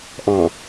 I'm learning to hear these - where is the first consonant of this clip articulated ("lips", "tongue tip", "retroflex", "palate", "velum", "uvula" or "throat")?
throat